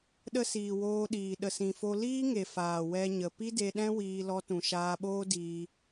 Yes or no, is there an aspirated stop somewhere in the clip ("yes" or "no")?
no